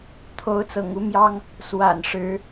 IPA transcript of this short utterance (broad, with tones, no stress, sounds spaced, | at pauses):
t̪ʰ o˨˦ ʊ̯ t͡s ɤ̰˨˩ ŋ u˨˦ m j ɑ˦ ŋ | s w a̰˨˩ n ʂ ɻ̩˨˦